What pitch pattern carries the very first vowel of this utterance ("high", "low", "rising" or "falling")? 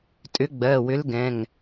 rising